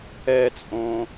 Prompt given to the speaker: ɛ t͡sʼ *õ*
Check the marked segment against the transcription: correct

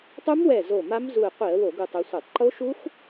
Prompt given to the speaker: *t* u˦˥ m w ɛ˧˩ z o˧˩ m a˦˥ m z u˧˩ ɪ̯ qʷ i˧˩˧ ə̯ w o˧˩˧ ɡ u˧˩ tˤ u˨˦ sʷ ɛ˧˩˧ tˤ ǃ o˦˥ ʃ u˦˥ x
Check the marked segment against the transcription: incorrect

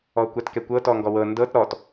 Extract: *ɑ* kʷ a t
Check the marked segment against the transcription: incorrect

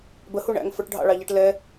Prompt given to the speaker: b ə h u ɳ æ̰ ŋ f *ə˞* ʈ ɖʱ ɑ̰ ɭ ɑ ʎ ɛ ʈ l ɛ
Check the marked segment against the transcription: correct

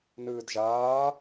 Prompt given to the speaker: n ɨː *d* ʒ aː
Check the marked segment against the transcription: correct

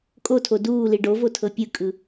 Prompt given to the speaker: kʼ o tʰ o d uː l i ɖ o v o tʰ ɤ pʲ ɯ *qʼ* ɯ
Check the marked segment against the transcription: incorrect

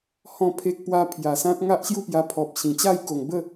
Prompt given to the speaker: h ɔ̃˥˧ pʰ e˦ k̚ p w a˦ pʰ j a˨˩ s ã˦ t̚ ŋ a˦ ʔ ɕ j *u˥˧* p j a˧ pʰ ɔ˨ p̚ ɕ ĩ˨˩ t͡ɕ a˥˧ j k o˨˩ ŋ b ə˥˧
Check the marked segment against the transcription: correct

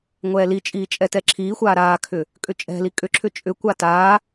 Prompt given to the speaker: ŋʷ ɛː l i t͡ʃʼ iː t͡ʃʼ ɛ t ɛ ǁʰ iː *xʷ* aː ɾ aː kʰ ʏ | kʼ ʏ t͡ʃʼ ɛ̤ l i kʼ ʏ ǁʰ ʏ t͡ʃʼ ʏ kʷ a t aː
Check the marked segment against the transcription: correct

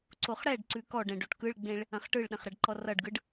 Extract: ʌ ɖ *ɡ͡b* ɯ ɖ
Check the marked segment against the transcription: incorrect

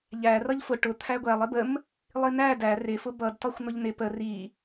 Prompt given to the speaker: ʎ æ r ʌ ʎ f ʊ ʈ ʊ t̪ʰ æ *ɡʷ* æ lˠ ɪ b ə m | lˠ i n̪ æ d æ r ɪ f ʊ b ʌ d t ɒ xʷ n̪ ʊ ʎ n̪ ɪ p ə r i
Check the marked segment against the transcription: correct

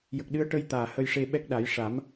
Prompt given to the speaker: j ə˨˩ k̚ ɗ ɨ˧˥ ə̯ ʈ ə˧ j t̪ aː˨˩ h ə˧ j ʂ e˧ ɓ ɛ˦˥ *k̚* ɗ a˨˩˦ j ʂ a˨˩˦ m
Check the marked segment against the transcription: correct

